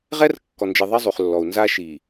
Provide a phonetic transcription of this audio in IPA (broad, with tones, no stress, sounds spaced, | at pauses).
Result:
ʁ ɛ˦ r kː ɔ˨ n d͡ʒ e˨ ðˤ ɛ˦ zˤ y˨ χ lː ɔ˨ u̯ n z a˦ ʃ i˨